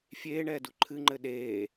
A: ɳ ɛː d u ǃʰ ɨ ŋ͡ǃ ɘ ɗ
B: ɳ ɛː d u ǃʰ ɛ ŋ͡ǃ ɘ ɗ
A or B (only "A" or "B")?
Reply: A